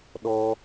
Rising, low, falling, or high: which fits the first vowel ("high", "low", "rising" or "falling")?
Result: high